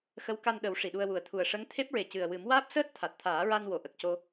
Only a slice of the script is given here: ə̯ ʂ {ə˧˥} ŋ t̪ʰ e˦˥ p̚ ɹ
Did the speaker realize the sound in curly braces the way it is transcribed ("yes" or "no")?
yes